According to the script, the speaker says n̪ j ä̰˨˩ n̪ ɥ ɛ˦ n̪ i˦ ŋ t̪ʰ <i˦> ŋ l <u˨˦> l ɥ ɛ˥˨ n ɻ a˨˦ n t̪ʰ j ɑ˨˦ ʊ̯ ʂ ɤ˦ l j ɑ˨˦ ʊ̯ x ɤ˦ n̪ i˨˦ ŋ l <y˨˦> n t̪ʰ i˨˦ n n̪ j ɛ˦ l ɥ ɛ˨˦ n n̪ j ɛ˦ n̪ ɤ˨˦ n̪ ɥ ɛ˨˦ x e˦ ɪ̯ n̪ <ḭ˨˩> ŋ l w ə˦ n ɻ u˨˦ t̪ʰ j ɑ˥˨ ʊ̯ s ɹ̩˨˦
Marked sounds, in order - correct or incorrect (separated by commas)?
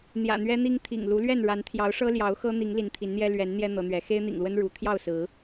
incorrect, correct, incorrect, correct